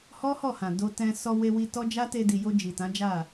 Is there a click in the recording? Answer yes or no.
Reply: no